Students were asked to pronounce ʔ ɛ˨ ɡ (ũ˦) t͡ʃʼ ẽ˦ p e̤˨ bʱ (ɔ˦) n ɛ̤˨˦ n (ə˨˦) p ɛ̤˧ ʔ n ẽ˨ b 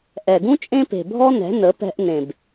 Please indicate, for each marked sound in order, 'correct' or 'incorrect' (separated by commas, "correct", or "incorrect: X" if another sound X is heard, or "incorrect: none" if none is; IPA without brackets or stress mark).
correct, correct, correct